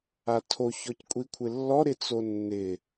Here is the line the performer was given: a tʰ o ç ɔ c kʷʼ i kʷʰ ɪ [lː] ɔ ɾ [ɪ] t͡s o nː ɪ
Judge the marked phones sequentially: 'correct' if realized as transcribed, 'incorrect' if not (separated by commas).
correct, correct